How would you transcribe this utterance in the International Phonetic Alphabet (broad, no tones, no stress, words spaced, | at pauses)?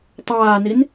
tˤaːnin